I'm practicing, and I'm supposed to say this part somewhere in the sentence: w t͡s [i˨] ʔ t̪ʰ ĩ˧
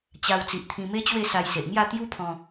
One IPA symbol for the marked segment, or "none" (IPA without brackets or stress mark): i˨